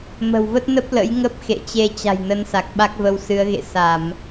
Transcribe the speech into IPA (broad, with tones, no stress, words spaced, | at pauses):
mə̤˨˩wvə˦˥t̚nə˦˥p̚ lə̰˧˥jŋə˦˥p̚xḛ˧˨ t͡ɕe˧ t͡ɕa̤˨˩jnə˨˦nsa˨˩k̚ ɓa˦˥k̚və˨˦wsɨ˨˦ə̯ɣḛ˧˨ sa˧˩˨m